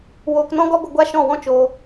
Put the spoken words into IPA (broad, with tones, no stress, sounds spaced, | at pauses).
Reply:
w oː˧ k n ɔ̃˦ ɡ ɔ˦ ɡʷ ə˧ ɡʷ a˦ ʃ ɔ̃˦˨ w ɔ̃˦ t͡ʃ oː˧